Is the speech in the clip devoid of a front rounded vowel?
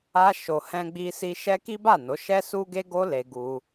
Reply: yes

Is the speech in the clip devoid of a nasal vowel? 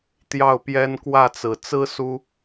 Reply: yes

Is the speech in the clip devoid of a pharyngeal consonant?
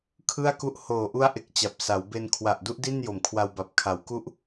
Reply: yes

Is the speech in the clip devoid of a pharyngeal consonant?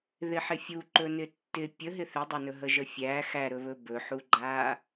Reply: no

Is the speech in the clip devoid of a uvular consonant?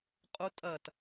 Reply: no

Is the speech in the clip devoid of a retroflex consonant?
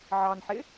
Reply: yes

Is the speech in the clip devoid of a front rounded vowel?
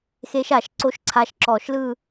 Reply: yes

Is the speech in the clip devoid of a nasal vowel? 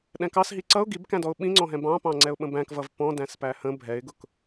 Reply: no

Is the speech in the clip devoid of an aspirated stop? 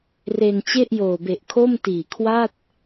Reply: no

